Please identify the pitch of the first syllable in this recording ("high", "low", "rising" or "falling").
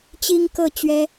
high